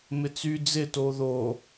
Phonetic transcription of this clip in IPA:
mɪt͡sy d͡zɪ toðo

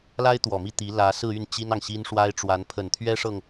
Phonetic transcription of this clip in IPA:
la˥ɪ̯t̪wɔ˨˩mi˥˩ t̪i˧˥ lä˧˥ sɹ̩˥˧y˥˩n t͡ɕi˥nɑ˨ŋɕi˥nʂwa˥ɪ̯ ʈ͡ʂwa˧˥npʰə˨˩nt̪ʰɥɛ˥ʂɤ˨ŋ

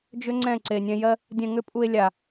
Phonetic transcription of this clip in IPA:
d͡ʒʏ˦ ŋ͡ǀɛ̃˦˨ǀe˨ nʲɛ̃˧jɜ˦ | dʲɛ̃˧ŋʏ˦pʼu˧e̯ lʲa˨

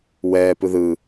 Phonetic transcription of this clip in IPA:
wɛː pɯðɯ

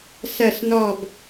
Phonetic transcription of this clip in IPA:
sɜ˧˩snɔ˧˩b

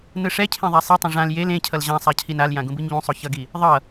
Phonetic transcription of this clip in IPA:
nɯʂɛcʰẽ ðˤasˤɛtˤẽ ʐãl jel ẽ cʰʌlʑãsˤa cʰinaljã ɡũbɯɲʎũsˤo çʌɡi | ðˤʌ

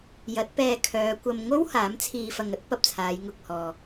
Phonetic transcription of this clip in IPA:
jɐ˨˥t̚pɛː˧kʰœː˨˧ kʷɐ˧mŋo˥w haː˨˥mt͡sʰiː˧fɐ˧ŋ ɐ˥t̚ pɐ˨p̚t͡sʰaː˨˧j ŋʊ˨k̚ hɔː˨

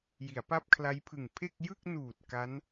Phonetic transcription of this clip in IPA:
ji˩˦a̯pa˥˩p̚kʰla˦˥j pʰɯ˨˩ŋpʰe˥˩k̚ jɯ˥˩k̚nuː˨˩t̚ ka˦˥n

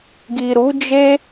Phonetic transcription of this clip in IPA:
ɡi˨ɾu˨˦d͡ʒe˦

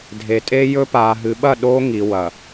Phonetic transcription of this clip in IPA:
dʱe˨tʼe˦jɵ˦ paː˨ɦɨ˨ɓɐ˦˨ ɗoː˦ŋi˨wɐ˨

